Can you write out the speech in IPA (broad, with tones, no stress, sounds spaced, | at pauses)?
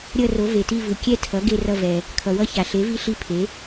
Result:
ɾʲ ʌ˥˧ r o˩˥ v e˩ t i˥˧ v ɯ˩ kʲ ɛ˥˧ tʰ ʌ˩˥ ɡ e˥˧ r ʌ˥˧ v ɛ˩ | kʰ ʌ˩ w ʌ˥˧ ç a˩ ɬ e˩˥ v i˥˧ ɬ i˥˧ pʰ e˩˥